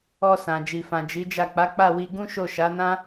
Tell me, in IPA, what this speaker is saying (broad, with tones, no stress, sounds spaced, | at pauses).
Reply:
ɔ˧ s ã˨ d͡ʒ i˨ f ã˨ d͡ʒ i˨˦ d͡ʒ a˦˨ k͡p a˨˦ k͡p a˦˨ w i˧ ɡ ũ˦ ʃ o˦˨ ʃ a˨˦ n ã˦